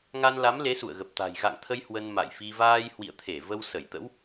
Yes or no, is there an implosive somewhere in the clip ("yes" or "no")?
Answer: no